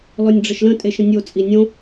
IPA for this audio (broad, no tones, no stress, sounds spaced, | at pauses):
l ɔ nʲ ɖ͡ʐ ə ʃ l ə̃ tʼ e ʃ ə̃ nʲ o t͡sʼ i nʲ õ